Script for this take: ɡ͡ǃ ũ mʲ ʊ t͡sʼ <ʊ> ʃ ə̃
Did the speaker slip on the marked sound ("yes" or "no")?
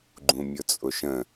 no